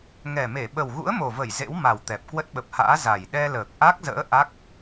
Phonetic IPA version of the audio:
ŋ ɛ˨˩ m e˧˩ ɓ ə˨˩ w ɣ ṵ˧˥ ə̯ m o˨˩ v ə˧˩ j z ḛ˧˥ w m a˨˩ w t̪ ɛ˨˩ p̚ k w ə˦˥ t̚ ɓ ə˨˩ p̚ h a̰ː˧˥ z a˨˩ j ɗ ɛ˧ l əː˨˩ k̚ ʔ a˦˥ k̚ z ə̰ː˧˥ ʔ a˦˥ k̚

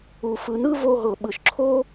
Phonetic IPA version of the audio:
u˩ f ɯ˩ n ɯ˥ v o˧ ɦ ɤ˩ ɓ ɯ˩ ʃ ǁʰ o˥

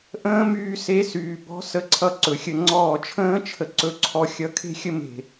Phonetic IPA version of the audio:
ʔ ə̃ː˦˥ m yː˧ s e˨˥ s yː˩ b ɔ̤˨˥ s ə˨˥ ǀʰ ʌ˧ ǀ ɵ˩ xʲ ə˧˩ ŋ͡ǀ ɔː˧˩ t͡ʃʰ ə̃ː˦˥ t͡ʃʰ ə˧ ǀ ɵ˧ ǀʰ ɔ˧ xʲ ʌ˨˥ kʰ e̤˦˥ xʲ ə˦˥ m e̤˧˩

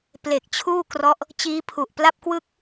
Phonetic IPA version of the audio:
p l e˨˩ k̚ t͡ɕʰ uː˥˩ k r ɔ˦˥ ʔ | t͡ɕ iː˦˥ pʰ u˨˩ ʔ p l a˥˩ p̚ k w ɯ˥˩ k̚

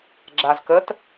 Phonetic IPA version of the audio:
ɡ͡ǁ a z k ə t

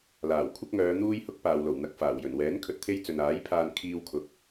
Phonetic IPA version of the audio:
l aː˨˩ w kʷʰ ɐ˥ k̚ ŋ œː˨˧ n̪ uː˥ j h ʊ˥ k̚ p aː˨ w l o˨˩ w n̪ ɐ˨ k̚ f aː˨˩ w j ɵ˨˩ n w ɛː˨˥ n kʰ ɵ˧ t̚ t̪ʰ e˥ j t͡s ɵ˨ n aː˨˥ j pʰ aː˧ n kʰ iː˧ w kʰ ʊ˨ k̚

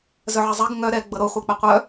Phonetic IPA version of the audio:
z œ ʕ ɪ zˤ ɛ ɡ ŋ œ ɾ ɛ ɡ͡b ɤ ɾ o χʷ œ k͡p ɪ qʷ œ

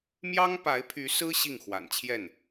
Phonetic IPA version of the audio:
m j ɑ˥ ŋ p a˧˥ ɪ̯ pʰ y˧˥ s ɹ̩˥ ɕ i˥˩ ŋ x w a̰˨˩ n t͡ɕʰ j ɛ˥˩ n

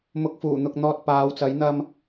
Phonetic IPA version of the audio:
m ʊ˨˥ k̚ f uː˨˩ n̪ ʊ˨ k̚ n̪ ɔː˧ t̚ p aː˨˧ w t͡s ɐ˨˥ j n̪ ɐ˧ m

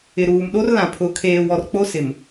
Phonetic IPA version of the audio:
ɪ˨ ɾ uː˨ m ɗ o˦ r l ã˨ pʰ ʊ˨˦ kʰ eː˨ w ɔ˨ r k͡p o˦ s ɪ˨ m

